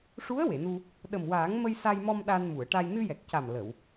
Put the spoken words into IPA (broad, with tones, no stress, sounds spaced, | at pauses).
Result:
ʂ u˧˥ ə̯ w e˨˩˨ n u˧ | ɗ ə˨˩ m w aː˨˩˦ ŋ m ə˧ j s a˧ j m ɔ˧ m ɗ a˧ n m u˨˩˨ ə̯ ʈ a˧ j n ɨ˧ j ɛ˨˩ k̚ c a˨˩ m l ə˨˩˨ w